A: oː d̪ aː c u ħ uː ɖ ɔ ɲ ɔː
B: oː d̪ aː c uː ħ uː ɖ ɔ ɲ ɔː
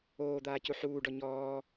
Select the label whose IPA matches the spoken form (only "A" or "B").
A